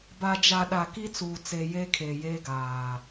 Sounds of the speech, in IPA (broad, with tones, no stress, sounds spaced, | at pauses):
b a˨ d͡ʒ a˨ ɗ a˨ k i˦ t͡s uː˨ t͡s e˨ j eː˦ kʰ eː˨ j eː˦ ɡ aː˨